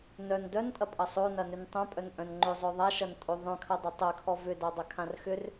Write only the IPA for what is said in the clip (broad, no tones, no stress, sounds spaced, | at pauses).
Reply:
n œ n d œ n tʼ ɐ pʼ ɐ sˤ o n ɐ n ʏ n tˤ œ̃ pʼ œ n ʔ œ̃ n ŋ͡ǃ ʏ zˤ œ ðˤ a ʃ ɐ n tʼ o ðˤ œ̃ kʰ ɐ dˤ ɐ tˤ ɐ kʰ ɔ v ʏ d a dˤ ɐ kʰ ã r x ʏ r